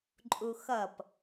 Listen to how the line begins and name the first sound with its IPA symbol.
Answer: ǃʼ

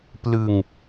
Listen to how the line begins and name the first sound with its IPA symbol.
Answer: p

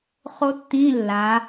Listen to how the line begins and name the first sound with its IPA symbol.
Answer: χ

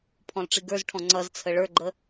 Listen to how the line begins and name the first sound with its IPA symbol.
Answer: pʰ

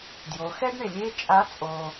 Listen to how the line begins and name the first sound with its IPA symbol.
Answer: d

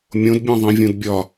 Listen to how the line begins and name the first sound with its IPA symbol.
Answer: mʲ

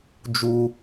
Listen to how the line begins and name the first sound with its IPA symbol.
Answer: d͡ʒ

